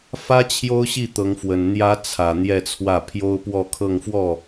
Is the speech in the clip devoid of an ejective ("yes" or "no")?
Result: yes